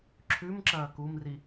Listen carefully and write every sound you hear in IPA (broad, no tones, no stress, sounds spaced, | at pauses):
ǁʰ ʉ m ǁ ɐː k u m r i